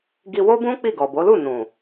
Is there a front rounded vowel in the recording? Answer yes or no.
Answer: no